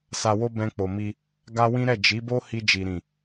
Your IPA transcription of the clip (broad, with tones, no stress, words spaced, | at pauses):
sa˧wo˦ bɛ̃˧k͡po˨mi˧ | ɡa˦wĩ˦ ɾɛ˦˨ d͡ʒi˨˦bo˦ hi˧d͡ʒi˨ɾĩ˨